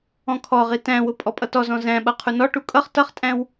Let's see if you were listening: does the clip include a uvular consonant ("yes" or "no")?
yes